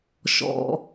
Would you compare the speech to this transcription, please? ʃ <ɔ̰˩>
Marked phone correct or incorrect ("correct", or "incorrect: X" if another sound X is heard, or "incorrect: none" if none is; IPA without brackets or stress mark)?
correct